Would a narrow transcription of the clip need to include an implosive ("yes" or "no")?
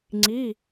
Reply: no